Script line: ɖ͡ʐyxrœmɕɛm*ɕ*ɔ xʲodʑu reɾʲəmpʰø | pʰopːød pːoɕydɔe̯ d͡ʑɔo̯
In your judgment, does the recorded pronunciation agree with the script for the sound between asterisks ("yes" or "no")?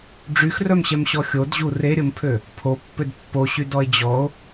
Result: yes